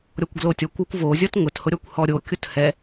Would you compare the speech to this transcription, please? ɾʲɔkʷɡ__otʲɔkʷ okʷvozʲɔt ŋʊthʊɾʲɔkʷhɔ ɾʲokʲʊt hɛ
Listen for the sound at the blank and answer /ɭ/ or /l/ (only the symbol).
l